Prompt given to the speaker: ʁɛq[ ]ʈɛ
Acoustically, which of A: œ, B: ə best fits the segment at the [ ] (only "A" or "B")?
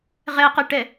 B